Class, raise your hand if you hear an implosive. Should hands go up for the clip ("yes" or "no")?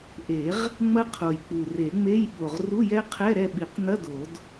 yes